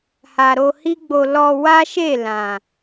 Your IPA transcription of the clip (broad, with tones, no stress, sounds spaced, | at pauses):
h a˨ ɾ o˧ h i˦ ɡ͡b o˧ l ɔ˧ w a˦ ʃ e˦˨ l ã˨